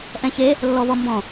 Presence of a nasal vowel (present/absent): present